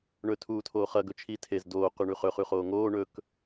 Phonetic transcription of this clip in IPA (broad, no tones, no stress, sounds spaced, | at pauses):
ɳ ɵ tʰ uː tʰ oː χ ɐ ɡ ɵ t͡ʃʰ i tʰ e z d oː q ʉ ɳ ʉ χ ɵ χ ʉ χ oː ŋ oː ɳ ɵ k